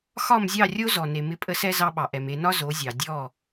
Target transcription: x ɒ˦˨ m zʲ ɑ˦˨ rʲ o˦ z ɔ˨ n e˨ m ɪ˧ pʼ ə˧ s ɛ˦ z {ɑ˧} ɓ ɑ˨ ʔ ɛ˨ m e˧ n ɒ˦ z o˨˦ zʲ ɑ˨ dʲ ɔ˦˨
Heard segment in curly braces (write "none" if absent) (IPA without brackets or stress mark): ɑ˧